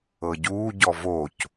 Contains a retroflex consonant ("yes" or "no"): no